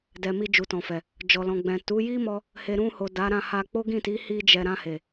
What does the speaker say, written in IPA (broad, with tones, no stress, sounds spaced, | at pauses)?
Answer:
d ɛ˨ m i˧ d͡ʒ u˨ t ɔ̃˨ f ɛ˨ | d͡ʒ ɔ˨ l ɔ̃˨ ɡ͡b ɛ̃˨ t u˨˦ j i˦ m ɔ˧ | h e˨ ɾ ũ˧ h o˨ d a˨˦ ɾ ã˦˨ h a˧ k͡p o˦ ɡ ĩ˦˨ t i˨˦ h i˧ d͡ʒ ɛ˨ ɾ ã˧ h e˨